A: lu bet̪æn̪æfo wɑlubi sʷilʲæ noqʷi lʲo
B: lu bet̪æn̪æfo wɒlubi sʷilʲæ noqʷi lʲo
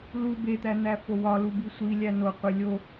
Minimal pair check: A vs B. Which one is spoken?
B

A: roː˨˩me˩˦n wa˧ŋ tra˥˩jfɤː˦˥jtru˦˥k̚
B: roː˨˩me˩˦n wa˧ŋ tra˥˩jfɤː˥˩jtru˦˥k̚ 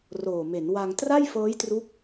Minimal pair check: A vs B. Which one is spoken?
A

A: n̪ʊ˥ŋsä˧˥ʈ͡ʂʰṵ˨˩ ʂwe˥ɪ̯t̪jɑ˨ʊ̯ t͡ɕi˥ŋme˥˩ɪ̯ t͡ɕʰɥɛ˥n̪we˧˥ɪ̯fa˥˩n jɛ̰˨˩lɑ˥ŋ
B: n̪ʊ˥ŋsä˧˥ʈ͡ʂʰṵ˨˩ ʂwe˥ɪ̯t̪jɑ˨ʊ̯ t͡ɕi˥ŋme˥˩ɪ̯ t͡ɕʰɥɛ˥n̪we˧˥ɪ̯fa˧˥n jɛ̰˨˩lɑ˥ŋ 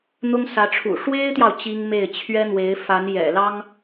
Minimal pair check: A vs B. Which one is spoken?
B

